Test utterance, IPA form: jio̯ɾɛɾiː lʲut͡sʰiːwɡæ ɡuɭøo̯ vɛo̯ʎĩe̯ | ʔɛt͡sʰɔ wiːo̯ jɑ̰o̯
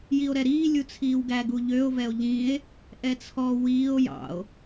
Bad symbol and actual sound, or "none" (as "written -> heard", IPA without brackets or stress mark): ɭ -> ʎ